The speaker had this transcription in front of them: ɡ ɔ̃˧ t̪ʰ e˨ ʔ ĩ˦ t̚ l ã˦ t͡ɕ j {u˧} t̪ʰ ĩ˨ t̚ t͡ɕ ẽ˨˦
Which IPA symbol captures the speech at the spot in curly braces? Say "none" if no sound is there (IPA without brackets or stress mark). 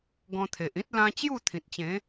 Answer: u˥˧